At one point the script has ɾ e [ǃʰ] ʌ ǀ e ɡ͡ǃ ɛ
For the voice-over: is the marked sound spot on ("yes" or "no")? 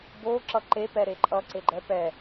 no